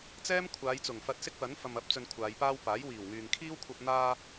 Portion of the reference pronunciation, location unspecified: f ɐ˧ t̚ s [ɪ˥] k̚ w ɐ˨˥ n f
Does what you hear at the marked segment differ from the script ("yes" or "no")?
no